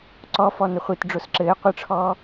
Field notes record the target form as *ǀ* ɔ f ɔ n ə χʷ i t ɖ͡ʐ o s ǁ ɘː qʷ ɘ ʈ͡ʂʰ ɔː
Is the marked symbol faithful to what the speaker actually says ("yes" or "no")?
yes